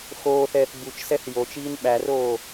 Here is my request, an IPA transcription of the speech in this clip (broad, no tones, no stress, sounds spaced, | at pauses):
x oː θ ɛː θ b u t͡ʃ s ɛ θ j o t͡ʃ iː n ɓ æ r oː